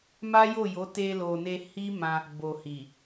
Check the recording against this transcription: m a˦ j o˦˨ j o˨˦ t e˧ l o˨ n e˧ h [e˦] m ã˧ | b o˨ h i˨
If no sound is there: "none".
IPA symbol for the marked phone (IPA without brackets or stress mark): i˦